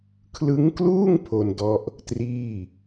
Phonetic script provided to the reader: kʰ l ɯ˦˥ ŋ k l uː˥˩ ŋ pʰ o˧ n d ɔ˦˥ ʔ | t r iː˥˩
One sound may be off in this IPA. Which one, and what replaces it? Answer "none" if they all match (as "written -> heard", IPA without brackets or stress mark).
none